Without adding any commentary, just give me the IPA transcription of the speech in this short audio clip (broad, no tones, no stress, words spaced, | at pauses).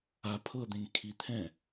a pʰɤd̪ẽŋ kʰit̪ʰɛ̃